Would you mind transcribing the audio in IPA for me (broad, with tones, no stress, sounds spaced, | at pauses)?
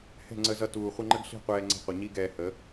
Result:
h ɛ̤˦˨ ŋ͡ǀ ə˧ z ʌ˧ t uː˨ χʷ ə˧ ŋ͡ǃ ə˦ ɡ ɬ i̤˦˨ qʷ ɛː˧ ŋ͡ǀ ɛ̤˧ qʷ ʌ˨ ɲ i˦ ɡ ɛː˧ h ə˨˦